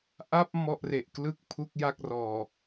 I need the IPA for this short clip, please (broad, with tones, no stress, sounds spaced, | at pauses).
ʔ a˥˩ p̚ m ɔ˥˩ ʔ r e˨˩ ʔ k l ɯ˥˩ k̚ pʰ u˥˩ k̚ j a˥˩ k̚ r ɔː˨˩